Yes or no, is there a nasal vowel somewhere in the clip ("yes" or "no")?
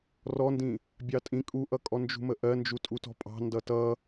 yes